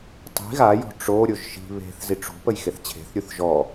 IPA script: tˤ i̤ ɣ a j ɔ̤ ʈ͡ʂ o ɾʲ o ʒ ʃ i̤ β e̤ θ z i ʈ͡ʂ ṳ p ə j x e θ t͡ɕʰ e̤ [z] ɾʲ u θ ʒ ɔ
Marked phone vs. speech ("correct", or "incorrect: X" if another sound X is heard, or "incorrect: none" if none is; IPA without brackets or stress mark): incorrect: θ